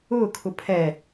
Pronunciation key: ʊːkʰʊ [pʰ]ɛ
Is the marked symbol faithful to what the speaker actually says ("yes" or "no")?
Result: yes